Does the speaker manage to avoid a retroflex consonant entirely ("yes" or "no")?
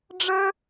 no